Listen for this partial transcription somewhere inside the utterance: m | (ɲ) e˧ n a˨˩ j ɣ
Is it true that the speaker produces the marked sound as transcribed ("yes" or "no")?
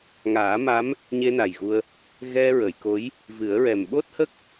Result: yes